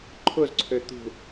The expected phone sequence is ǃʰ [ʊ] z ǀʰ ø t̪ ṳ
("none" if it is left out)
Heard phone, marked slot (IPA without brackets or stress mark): ʊ